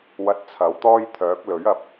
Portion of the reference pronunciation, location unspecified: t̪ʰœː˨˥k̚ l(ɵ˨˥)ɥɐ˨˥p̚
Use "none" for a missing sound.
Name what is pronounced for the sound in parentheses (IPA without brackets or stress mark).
ɵ˨˥